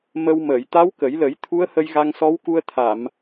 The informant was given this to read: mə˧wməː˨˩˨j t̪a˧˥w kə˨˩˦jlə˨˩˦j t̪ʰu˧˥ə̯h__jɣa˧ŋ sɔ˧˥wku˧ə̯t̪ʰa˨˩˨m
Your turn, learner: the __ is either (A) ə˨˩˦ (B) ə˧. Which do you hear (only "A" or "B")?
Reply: B